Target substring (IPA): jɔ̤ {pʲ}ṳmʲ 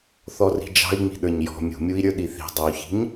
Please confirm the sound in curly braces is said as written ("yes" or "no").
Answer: no